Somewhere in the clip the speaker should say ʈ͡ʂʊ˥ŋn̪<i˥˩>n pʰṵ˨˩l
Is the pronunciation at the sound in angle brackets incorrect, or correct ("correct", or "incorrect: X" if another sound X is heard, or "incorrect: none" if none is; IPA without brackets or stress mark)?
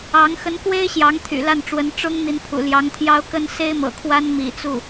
incorrect: i˧˥